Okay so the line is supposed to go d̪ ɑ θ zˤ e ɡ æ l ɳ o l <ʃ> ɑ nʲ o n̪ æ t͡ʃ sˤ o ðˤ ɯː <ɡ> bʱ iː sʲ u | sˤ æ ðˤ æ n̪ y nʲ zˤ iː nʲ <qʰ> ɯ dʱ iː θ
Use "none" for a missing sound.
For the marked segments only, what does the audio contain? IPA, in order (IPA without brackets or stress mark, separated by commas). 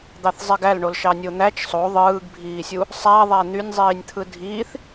ʃ, ɡ, t̪ʰ